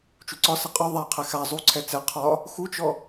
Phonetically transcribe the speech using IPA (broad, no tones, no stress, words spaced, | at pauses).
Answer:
t͡ʃuǀɒsɘ qʼɔ ðˤaqʰɛ xa zˤuǀʰɛ t͡sɛ qʰɒ | xut͡ʃɔ